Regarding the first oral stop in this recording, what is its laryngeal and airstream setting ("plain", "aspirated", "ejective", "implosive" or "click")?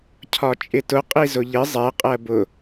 aspirated